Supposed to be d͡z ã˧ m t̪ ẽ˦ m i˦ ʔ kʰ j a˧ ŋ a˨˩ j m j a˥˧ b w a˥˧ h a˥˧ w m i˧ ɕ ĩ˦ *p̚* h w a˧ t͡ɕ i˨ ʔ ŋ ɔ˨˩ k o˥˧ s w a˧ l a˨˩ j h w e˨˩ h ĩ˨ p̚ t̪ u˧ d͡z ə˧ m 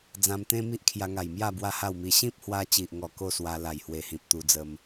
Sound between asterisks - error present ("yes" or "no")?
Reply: no